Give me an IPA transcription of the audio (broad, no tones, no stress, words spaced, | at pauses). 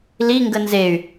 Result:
li ŋɡənzey̯